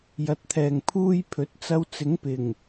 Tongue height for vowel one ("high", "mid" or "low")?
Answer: low